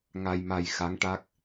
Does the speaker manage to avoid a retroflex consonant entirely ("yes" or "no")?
no